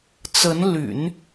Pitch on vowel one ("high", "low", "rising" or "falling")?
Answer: rising